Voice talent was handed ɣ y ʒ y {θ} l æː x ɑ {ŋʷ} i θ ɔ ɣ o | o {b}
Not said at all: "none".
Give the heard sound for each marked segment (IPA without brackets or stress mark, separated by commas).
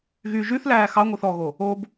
θ, ŋʷ, b